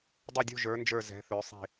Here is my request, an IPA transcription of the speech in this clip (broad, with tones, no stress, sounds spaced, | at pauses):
dˤ ɛ˦˨ dʲ ṳ˦˨ ʒ ə˞˨˦ n d͡ʒ ə˞˦˨ z ɛ̤˨˦ θ ø˨˦ sˤ i̤˦˨